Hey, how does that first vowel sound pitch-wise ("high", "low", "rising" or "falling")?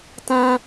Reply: high